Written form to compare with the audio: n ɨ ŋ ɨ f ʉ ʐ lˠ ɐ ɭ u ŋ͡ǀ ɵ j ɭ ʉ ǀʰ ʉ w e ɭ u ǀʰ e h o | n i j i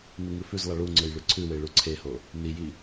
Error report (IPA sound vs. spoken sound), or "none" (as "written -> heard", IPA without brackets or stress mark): ʐ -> z